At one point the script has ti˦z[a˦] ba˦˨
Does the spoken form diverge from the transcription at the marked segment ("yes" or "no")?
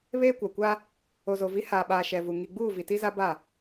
no